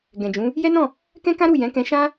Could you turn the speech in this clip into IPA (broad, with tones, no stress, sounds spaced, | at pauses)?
ɡ ɛ̃˨ d͡ʒ ũ˨˦ | j ɛ˦ n ɔ̃˦˨ | k ɛ̃˦ k ã˦ ɾ u˦˨ j ɛ̃˨˦ k ɛ̃˧ ʃ ã˦